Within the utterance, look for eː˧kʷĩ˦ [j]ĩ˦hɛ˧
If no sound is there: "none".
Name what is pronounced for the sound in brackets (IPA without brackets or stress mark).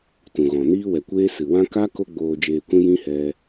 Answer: j